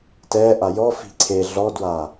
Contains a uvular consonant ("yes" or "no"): no